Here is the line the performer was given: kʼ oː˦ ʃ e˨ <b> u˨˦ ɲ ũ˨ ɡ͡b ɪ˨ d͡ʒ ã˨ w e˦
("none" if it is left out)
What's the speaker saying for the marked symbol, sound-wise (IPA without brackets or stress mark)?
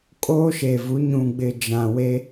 v